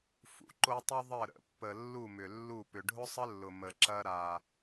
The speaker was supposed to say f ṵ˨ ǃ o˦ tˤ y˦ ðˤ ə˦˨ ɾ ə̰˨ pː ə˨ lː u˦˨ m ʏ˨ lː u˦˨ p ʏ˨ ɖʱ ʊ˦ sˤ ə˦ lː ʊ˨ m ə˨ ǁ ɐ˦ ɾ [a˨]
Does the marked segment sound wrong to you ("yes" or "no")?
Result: yes